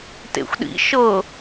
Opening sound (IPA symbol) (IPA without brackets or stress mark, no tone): t